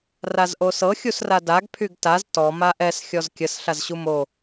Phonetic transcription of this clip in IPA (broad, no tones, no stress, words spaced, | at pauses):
razʔosɤ xʲusradaɡ pʰyɡtaz tɔ maʔɛs xʲɔzkʲəs ɬazɕumo